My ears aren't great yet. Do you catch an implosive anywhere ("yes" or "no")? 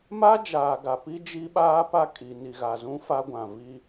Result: yes